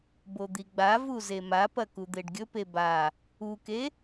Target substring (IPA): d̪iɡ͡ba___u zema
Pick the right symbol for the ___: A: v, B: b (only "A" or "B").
A